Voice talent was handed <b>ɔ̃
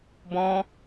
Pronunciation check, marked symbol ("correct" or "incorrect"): correct